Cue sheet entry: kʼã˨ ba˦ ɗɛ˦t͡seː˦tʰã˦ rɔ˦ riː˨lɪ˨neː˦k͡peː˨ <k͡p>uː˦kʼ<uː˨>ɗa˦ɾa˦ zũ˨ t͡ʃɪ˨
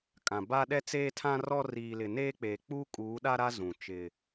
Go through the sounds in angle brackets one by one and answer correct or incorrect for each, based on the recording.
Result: correct, incorrect

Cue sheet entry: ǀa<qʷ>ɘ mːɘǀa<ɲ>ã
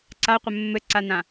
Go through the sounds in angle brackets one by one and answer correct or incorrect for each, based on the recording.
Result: correct, incorrect

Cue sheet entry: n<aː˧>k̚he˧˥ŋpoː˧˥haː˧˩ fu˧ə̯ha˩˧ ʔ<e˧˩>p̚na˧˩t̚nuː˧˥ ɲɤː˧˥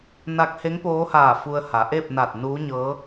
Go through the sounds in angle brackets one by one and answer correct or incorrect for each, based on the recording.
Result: incorrect, incorrect

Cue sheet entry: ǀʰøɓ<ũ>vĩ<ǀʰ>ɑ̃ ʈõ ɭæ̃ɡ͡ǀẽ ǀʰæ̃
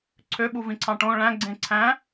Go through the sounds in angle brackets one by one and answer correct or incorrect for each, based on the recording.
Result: incorrect, correct

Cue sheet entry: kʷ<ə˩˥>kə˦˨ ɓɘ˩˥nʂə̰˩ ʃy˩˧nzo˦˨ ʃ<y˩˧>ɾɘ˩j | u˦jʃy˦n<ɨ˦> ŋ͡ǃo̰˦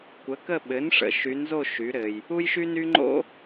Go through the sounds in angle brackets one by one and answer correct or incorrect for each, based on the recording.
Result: correct, correct, incorrect

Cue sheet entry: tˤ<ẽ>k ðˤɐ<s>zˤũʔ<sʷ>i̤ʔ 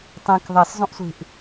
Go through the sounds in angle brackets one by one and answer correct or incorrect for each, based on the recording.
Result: correct, correct, correct

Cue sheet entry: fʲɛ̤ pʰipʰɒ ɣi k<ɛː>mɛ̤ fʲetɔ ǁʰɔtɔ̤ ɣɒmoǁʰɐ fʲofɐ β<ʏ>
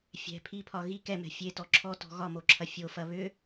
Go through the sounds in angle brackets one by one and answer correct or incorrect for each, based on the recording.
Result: incorrect, correct

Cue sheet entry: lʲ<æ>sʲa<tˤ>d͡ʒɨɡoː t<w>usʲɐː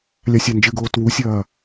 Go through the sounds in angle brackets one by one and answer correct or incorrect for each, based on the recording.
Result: incorrect, incorrect, correct

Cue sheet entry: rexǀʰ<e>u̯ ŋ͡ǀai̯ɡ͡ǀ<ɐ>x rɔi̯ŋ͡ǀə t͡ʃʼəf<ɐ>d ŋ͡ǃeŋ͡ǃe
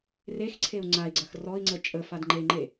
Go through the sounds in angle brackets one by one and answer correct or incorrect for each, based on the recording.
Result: correct, correct, incorrect

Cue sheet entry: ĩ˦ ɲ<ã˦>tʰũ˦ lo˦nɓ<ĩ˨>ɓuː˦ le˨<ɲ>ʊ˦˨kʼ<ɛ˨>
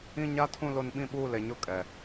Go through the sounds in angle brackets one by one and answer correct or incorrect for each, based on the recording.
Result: incorrect, incorrect, correct, correct

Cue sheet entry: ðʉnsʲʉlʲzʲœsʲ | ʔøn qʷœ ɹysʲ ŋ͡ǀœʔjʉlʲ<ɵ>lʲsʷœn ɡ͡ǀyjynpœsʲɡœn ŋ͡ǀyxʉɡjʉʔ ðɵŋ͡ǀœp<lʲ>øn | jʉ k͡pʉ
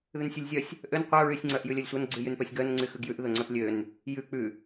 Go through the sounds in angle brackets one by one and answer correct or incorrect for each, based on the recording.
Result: incorrect, correct

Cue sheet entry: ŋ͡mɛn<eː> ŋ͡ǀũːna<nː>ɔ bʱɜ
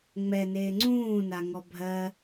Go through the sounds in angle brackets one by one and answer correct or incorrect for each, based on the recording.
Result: correct, incorrect

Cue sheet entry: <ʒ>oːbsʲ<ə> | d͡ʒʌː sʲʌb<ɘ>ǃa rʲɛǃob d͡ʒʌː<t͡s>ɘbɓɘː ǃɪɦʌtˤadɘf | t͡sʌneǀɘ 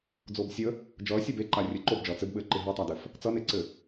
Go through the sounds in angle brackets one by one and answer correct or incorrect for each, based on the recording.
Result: incorrect, correct, incorrect, correct

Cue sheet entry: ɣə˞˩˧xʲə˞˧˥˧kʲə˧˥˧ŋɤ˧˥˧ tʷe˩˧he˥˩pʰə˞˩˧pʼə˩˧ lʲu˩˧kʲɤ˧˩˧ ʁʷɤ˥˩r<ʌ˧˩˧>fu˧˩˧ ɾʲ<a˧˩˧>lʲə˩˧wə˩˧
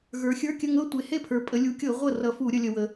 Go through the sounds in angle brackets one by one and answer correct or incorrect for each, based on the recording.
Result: correct, incorrect

